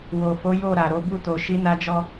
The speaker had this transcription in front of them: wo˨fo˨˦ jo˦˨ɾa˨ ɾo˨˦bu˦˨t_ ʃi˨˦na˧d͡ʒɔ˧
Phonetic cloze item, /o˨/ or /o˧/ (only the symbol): o˨